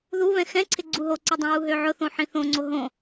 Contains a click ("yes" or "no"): yes